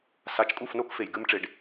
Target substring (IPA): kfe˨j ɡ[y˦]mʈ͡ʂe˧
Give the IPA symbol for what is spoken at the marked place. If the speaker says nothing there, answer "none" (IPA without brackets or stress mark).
ɨ˦